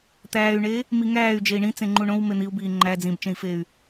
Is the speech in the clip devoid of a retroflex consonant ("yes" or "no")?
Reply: no